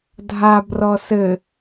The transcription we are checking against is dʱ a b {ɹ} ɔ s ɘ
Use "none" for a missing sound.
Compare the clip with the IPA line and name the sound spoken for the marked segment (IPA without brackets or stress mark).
r